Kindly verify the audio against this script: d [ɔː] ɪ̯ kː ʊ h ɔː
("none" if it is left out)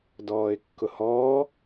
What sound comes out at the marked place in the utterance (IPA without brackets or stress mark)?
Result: ɔː